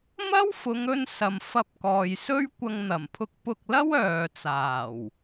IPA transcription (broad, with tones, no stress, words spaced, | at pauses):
mɐ˥wfʊ˨˧ŋ ɵ˧n sɐ˨mfɐ˧p̚kɔː˨jsɵ˥ɥ kʷɐ˧ŋn̪ɐ˨˩mpʰʊ˧k̚ pʊ˧k̚lɐ˥w œː˨t͡saː˨˩w